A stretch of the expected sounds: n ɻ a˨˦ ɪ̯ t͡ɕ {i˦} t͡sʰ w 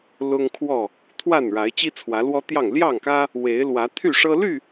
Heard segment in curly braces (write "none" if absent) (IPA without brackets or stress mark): i˦